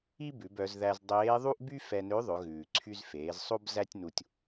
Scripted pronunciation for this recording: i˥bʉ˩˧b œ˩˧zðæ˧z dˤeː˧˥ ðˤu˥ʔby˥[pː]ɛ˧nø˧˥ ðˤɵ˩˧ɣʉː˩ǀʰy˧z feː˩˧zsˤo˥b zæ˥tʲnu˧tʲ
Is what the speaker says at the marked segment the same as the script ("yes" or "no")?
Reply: no